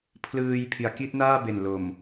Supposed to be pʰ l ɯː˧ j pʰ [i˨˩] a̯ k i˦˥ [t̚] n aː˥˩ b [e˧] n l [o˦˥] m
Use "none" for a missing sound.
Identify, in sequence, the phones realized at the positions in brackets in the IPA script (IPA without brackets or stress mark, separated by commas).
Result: i˩˦, t̚, e˨˩, o˨˩